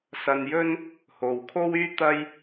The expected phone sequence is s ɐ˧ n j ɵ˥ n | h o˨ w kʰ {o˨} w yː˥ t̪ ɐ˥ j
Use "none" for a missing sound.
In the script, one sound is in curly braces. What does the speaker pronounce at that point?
o˥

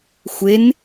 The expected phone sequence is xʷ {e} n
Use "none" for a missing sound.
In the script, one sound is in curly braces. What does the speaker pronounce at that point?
e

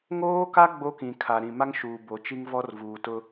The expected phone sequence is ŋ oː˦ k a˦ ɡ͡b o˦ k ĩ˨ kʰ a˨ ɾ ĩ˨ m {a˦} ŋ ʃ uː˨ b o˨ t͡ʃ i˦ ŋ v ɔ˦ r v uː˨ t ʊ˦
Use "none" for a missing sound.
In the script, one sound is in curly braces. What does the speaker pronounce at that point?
a˦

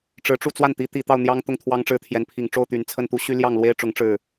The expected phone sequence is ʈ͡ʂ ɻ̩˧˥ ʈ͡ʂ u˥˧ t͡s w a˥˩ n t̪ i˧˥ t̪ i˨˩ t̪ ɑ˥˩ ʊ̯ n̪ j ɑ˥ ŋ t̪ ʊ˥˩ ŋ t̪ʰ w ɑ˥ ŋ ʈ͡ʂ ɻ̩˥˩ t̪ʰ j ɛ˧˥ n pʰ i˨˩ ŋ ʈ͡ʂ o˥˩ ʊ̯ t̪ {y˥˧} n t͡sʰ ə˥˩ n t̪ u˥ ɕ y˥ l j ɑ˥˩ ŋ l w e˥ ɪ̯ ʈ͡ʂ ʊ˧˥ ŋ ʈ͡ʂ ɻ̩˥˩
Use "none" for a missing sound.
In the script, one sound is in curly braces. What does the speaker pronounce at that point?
y˨˩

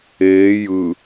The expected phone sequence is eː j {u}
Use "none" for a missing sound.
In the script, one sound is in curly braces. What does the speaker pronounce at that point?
ɯ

